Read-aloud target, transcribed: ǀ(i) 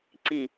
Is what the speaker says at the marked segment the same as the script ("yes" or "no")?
yes